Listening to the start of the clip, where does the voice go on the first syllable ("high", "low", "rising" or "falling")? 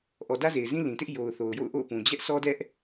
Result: low